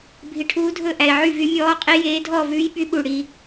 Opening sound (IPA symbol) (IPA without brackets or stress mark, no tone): bʱ